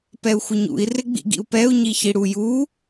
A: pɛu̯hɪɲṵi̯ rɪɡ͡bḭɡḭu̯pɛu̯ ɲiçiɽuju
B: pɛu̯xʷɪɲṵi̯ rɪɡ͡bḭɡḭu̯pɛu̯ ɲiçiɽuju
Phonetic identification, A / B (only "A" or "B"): B